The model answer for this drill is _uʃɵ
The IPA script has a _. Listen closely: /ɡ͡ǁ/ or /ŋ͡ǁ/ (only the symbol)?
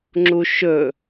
ŋ͡ǁ